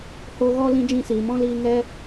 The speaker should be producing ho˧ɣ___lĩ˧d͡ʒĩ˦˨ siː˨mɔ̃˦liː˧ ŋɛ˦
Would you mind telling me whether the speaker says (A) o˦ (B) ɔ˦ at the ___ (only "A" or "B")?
B